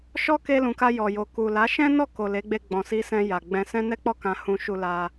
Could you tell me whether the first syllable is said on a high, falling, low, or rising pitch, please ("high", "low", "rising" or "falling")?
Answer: high